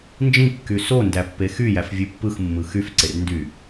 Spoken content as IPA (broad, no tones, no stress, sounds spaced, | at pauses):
n d͡ʒ ĩ kː y s o n d æ pː e x y j æ f vʲ u pː ɯ x mː ɯ x y f ǀ e r n d y